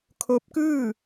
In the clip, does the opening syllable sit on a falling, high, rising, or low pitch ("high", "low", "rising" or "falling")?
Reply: rising